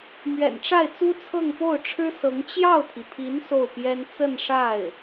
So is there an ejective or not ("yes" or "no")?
no